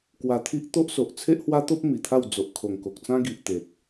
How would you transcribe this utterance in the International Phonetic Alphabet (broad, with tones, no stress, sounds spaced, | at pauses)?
k w a˧ t̪ʰ i˦ ʔ t̪ o˦ ʔ s o˨ ʔ t͡sʰ e˦ ʔ h w a˦ t̪ o˦ p̚ m i˨˩ t̪ʰ a˥˧ w d͡z o˨ ʔ kʰ o˨˩ ŋ k o˨ k̚ t͡s ã˦ ɡ i˨ ʔ t̪ e˨ t̚